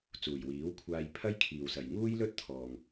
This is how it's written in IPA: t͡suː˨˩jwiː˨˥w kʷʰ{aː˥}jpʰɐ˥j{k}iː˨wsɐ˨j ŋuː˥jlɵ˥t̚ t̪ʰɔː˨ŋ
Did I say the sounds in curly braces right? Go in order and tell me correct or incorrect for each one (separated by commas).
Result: incorrect, incorrect